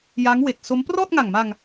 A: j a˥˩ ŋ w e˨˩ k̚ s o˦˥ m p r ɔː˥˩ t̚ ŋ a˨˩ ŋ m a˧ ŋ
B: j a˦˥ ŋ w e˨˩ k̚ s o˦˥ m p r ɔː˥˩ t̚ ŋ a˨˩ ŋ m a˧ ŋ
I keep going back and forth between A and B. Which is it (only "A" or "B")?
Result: B